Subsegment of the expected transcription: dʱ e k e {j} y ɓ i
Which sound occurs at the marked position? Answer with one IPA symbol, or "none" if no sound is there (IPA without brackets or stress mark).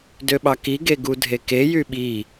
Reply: j